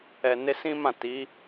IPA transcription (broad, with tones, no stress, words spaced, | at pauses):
ɛ˨ ne˧sĩ˦mã˦˨ ti˨˦